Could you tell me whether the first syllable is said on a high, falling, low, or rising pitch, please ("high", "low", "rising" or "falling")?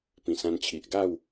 low